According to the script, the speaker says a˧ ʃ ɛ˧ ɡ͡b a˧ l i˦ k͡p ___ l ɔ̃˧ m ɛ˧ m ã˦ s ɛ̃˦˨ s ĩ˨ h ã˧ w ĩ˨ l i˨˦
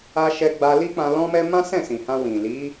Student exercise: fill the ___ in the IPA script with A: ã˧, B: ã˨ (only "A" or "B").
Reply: A